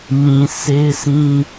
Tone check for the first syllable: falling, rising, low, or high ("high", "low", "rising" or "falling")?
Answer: low